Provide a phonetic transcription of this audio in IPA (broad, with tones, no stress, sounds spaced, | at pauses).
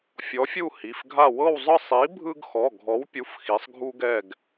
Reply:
fʲ ɔ˨˥ fʲ u˦˨ h i˩˧˩ f ɡʱ a˦˨ w ɤ˦˨ w zˤ ɯ˦˨ sˤ i˨˥ bʱ ɯ˦ ɡ x ɔ˩˧˩ ɡʱ ɔ˨˥ w pʲ u˩˧˩ f x i˩˧ sˤ ɡʱ u˦ ɡ ɛ˦˨ ɡ